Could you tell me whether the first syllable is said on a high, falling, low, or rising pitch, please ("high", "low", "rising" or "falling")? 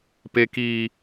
high